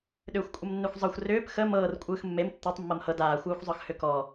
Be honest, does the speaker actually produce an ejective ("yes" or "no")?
yes